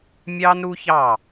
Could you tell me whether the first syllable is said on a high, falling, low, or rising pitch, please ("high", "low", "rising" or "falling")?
high